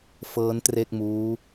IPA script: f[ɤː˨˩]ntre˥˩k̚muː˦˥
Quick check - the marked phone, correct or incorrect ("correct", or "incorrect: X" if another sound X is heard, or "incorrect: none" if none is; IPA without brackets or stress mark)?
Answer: incorrect: ɤː˦˥